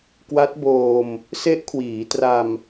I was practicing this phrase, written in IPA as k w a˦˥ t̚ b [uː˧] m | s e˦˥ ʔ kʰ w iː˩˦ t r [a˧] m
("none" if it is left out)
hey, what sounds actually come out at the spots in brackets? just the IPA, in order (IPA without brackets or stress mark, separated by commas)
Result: oː˧, a˧